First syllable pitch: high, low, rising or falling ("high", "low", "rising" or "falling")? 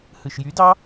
low